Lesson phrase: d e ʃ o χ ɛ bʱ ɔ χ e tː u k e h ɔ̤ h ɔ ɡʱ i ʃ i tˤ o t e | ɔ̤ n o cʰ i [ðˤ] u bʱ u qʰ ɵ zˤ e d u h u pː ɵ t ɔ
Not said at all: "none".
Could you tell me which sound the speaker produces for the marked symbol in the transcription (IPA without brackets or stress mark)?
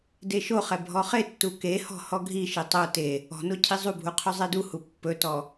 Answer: zˤ